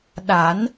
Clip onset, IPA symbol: ɗ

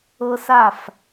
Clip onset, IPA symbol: ɤ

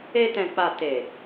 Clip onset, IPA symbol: e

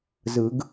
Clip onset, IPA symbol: z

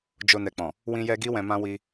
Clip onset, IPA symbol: d͡ʒ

